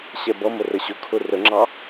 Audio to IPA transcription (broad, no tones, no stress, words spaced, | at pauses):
ɕɛbʌmə rəɕʊkʰʊ rəŋ͡ǁɑ